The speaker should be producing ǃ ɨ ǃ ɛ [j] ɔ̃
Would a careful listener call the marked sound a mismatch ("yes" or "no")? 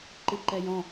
no